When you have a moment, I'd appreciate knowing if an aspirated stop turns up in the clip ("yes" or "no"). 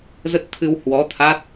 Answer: yes